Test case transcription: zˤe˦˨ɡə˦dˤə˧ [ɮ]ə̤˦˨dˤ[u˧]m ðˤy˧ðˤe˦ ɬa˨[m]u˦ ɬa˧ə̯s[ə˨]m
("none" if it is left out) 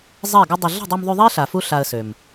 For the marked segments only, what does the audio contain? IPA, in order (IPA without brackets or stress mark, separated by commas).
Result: ɮ, u˧, f, ø˨